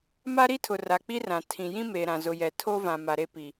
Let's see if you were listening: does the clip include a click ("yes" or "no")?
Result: no